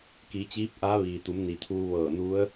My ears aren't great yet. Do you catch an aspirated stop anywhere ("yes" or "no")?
yes